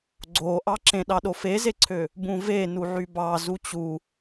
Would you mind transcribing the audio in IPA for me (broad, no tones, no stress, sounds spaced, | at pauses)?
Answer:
ɡ͡ǀ o ʔ ɑ ǁ ẽ ɗ ɑ ɗ o f e z e ǀʰ ø | b ũ v e n u ʕ y b ɑ z u t͡ɕ u